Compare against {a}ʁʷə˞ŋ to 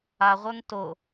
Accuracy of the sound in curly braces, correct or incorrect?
correct